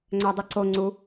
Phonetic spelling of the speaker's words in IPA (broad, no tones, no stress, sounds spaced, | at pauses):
ŋ͡ǀ æ dˤ u ǀ o ŋ͡ǀ u